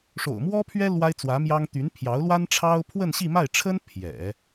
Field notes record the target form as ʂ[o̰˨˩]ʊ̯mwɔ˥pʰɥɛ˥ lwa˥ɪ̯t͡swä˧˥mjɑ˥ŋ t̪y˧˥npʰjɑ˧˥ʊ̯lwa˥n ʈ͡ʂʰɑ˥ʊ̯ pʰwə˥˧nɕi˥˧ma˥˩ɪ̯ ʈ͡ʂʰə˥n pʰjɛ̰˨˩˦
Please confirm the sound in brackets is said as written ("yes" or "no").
yes